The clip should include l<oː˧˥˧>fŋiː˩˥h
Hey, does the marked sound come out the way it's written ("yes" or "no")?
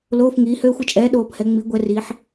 yes